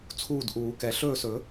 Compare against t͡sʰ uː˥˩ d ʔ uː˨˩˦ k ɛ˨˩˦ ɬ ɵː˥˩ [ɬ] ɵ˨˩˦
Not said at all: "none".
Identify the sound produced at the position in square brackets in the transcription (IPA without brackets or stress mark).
s